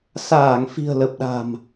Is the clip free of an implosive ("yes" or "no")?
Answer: no